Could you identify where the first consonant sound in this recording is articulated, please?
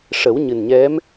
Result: retroflex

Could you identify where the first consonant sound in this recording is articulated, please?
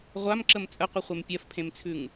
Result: uvular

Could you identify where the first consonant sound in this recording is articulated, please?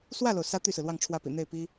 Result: alveolar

